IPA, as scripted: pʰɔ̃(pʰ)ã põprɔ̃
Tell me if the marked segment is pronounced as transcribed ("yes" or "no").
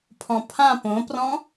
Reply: yes